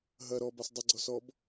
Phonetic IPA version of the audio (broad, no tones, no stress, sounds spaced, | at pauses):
ɦ ɐ ɾ ɔ b a s dˤ ɘ ɡ͡ǀ ɔ s ɔ b